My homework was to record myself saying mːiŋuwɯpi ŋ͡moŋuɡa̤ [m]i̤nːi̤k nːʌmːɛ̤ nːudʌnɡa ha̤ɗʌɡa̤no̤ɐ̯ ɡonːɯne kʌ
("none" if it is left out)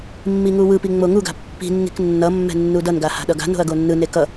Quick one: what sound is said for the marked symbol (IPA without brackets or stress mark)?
pː